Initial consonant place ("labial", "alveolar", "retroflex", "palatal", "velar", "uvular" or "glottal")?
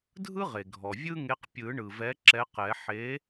alveolar